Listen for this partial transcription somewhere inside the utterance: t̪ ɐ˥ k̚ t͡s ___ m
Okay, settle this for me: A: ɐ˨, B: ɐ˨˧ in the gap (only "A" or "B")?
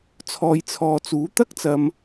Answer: A